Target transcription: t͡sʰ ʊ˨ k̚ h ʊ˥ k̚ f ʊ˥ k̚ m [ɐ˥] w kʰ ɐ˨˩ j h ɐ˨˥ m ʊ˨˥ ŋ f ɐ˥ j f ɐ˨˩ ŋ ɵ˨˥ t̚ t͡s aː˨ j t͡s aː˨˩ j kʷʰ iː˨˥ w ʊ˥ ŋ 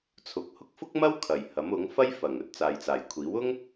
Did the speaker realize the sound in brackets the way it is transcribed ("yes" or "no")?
yes